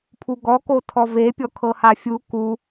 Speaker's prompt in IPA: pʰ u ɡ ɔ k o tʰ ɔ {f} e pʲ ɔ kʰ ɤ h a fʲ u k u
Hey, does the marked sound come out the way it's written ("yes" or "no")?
no